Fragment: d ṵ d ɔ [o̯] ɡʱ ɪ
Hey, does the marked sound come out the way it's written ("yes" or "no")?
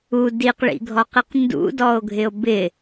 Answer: yes